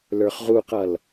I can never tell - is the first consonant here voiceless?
no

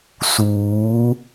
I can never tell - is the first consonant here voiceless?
yes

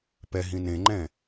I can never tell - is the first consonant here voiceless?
yes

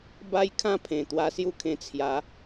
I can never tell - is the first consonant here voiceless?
no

